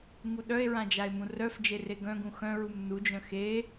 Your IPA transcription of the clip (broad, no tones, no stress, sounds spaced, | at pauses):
ŋ u ɗ œ e̯ ɹ ã d͡ʒ a e̯ m ũ r œ f d͡ʒ e r e ɡ œ̃ ɡ ũ x œ̃ ɹ u m n u d͡ʒ œ̃ x e